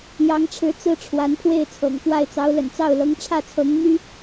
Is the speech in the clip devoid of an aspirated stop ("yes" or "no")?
no